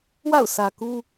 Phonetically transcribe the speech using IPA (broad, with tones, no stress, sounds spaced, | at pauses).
w a̰˦˨ ʊ̯ sʰ ä˨ k u˦